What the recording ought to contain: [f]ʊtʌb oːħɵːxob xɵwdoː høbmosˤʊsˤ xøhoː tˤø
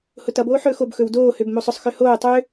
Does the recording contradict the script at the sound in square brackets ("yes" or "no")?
yes